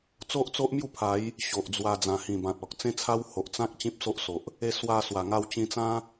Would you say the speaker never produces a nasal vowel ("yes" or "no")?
no